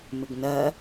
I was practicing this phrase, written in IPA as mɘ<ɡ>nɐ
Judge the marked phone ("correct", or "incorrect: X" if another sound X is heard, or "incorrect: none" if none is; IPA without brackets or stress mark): correct